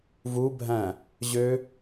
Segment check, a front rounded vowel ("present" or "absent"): present